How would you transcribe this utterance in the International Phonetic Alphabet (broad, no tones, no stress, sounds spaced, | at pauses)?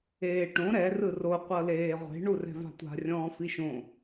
eː ʈ õ ɾ ɛ r ɯ r o qʷ ɤ l eː ʁʷ e̤ ɳ u r ɛ̤ v a̤ tʷ a̤ rʲ ɔ̃ː f i ʃ õ